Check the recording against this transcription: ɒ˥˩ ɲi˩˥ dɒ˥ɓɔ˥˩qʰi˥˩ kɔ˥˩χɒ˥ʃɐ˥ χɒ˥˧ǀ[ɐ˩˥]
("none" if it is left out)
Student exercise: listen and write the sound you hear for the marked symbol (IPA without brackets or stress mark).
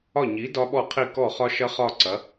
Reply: ɐ˩˥